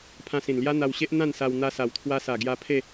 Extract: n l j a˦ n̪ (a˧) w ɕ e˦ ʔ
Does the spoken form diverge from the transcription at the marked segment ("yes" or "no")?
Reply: no